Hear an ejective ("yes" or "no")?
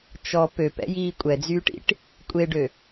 yes